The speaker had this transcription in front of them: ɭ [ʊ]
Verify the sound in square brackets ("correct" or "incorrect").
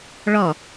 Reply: incorrect